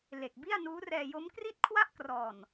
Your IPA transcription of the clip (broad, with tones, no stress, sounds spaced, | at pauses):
l e˨˩ k̚ b i˥˩ a̯ n uː˦˥ r ɛː˧ j o˦˥ m k r i˥˩ t̚ kʰ w a˥˩ ʔ k r ɔː˨˩ n